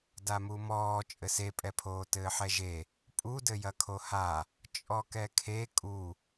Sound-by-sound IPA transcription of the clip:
damumɔː t͡ʃʼɘsepʼɛpʰoː tɘːħɛʒe | pʼudɘjɐ kʰoha | t͡ʃʼɔkɛkʰe kʼu

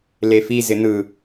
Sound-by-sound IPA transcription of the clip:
lefi zɪn̪ɯ

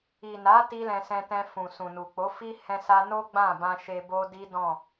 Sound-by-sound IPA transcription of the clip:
i˨na˨˦ ti˦lɛ̃˧sɛ̃˧tɛ̃˧ fũ˨sũ˨ nu˨k͡po˨˦fi˦ hɛ̃˧sa˧ no˦ɡ͡bã˦˨bã˧ ʃe˧bo˦di˦dɔ̃˦˨

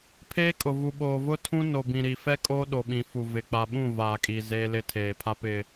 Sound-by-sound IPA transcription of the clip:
pʰeː˦kʼʊ˨vu˨ ɓoː˨vʊ˦ tʰũ˦ no˨bĩ˨ɾi˨fɛ˦ kʼoː˦ɗo˨ɓĩ˨fu˨ vɪ˨ k͡pa˨ɓũ˦˨ vaː˨kʼiː˨ zeː˦lɪ˦ tʰeː˨pʰa˦ pɪ˨

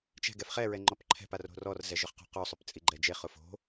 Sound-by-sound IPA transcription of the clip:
t͡ʃɛ̤ ɡɛfχɛɹɛ ŋ͡ǃɔpǃʰɛ̤pa ro̤rɔrzɛ ʒʊχqo̤qosˤʊp t͡sʼiɡ͡ǃɛd͡ʒeχʊf o̤

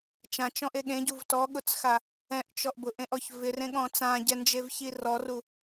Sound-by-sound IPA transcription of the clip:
t͡ʃãt͡ʃɔ̃ʔe ɠẽɟuv tɔɠʊt͡sxa | ɛ̃ʔt͡ʃɔʔ bʊʔẽʔɔç vɪrẽɠɔ̃ t͡sãɟɛnd͡ʒevçi rɔru

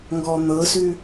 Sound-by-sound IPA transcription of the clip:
ŋɡɔn̪ɤsʉ

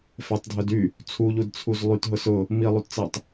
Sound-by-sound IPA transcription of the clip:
fɛtˤdʱœd y | t͡sʰuʎudt͡sʰuz lˠytɦʊ sʊ | milˠutt͡sɛtˤ

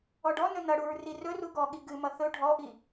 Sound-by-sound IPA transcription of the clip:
ɔɖɔnɵ nʌɽuɹ rirɵru ɡɔɠi ɡɨmʌ θɵ ɖʱɔʔi

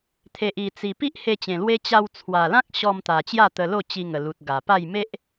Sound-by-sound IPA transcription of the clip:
t̪ʰe˨ʔi˨˩t͡si˨˩ pi˦ʔhe˧t͡ɕẽ˨˩ lwe˦ t͡ɕa˧wt͡sʰwa˨˩lã˦k̚ ɕɔ˧mt̪a˨˩ t͡ɕja˥˧t̪ə˧lo˥˧ t͡ɕi˧ŋə˨˩lu˨t̚ ɡa˨˩pa˥˧j me˦ʔ

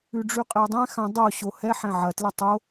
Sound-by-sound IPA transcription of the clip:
ʉɖ͡ʐʉqʼɛdˤɛ̃ xã dˤo ɕohɛ ħɛ̃ʕɐ tlətˤo

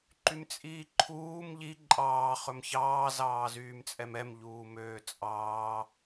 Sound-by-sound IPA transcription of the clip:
ǃymt͡sʼiːǃʰuːm ʎi ǃʼɑː χɵmçɑː zɑːzyːmt͡sʼɛmɛm ʎuːmøːt͡sʼɑː

